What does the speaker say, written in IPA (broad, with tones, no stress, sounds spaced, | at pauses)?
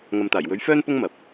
ŋ ɐ˨ m t̪ aː˨˩ j w ɵ˨˥ ɥ f œː˥ n p ʊ˥ ŋ m ɐ˨ p̚